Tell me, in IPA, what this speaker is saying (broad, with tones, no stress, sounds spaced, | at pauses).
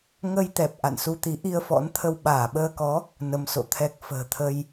ŋ ə˧ j t̪ ɛ˨˩ p̚ ʔ a̰˧˨ n s u˧ t̪ i˨˦ ʔ i˧ ə̯ f ɔ̰˧˥ n t̪ʰ ə˧ w ɓ aː˧˩ ɓ əː˧ k ɔ˨˦ | n ə˧ m s o̰˧˨ t̪ʰ ɛ˦˥ k̚ f ə̤ː˨˩ t̪ʰ ə˧ j